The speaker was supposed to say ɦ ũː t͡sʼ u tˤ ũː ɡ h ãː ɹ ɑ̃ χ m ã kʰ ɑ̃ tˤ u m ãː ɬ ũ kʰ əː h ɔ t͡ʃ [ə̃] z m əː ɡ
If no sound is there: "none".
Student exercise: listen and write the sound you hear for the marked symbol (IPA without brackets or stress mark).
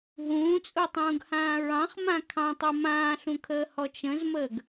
ə̃